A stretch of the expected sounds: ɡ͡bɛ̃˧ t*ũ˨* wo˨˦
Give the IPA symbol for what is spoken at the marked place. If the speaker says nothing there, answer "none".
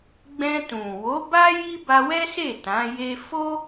ũ˨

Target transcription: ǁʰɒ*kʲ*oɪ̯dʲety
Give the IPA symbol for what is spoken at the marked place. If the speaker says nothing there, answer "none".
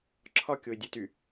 kʲ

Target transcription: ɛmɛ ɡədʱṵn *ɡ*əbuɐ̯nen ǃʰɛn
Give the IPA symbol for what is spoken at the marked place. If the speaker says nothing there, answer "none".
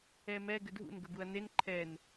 ɡ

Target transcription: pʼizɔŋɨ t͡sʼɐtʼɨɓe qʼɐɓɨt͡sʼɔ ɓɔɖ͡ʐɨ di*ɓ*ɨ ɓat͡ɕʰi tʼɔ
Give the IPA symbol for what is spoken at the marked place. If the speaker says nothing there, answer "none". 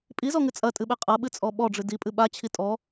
pʼ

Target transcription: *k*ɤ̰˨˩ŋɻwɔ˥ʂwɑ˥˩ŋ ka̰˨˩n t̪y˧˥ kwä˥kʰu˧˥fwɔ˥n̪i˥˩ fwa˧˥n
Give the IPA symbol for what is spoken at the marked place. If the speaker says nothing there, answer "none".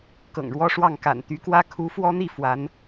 k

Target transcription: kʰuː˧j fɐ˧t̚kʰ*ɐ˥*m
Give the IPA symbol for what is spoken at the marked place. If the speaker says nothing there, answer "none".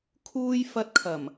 ɐ˨˩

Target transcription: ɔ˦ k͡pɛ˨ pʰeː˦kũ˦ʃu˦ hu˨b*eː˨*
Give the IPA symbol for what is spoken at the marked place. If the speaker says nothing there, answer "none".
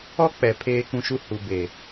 eː˨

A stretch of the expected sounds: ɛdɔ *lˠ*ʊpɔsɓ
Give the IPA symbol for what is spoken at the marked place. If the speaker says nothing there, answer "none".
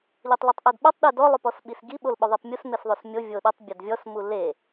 lˠ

